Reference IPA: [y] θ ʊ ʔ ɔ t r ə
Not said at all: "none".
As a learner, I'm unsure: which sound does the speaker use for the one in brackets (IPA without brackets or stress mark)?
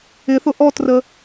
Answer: ɪ